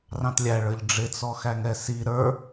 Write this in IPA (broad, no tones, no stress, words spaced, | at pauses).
rɑ̃tlʲæɭə˞ʎ ɖ͡ʐɪt͡sɔxæŋɛ si ɾə˞